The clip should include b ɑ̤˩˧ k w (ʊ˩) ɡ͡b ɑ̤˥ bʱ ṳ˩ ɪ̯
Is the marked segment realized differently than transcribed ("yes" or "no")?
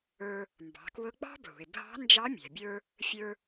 yes